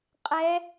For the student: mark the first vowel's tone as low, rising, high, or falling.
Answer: rising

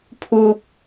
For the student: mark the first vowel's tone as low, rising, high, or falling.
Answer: low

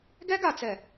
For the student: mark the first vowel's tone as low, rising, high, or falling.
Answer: high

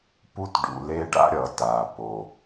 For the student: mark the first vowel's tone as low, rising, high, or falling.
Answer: high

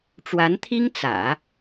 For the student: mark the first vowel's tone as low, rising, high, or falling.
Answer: rising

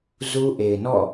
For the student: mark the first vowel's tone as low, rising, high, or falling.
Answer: high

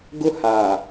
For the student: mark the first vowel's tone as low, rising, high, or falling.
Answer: high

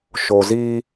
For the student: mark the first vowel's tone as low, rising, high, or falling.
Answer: low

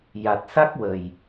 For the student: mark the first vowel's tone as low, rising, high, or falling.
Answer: low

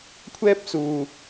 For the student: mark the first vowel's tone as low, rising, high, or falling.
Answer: high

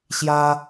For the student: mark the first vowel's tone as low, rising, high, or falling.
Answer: high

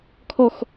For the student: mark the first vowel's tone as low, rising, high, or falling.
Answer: falling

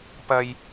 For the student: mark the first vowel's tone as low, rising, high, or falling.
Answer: low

